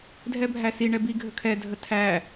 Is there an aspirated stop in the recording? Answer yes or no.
yes